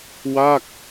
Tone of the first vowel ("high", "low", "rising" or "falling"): falling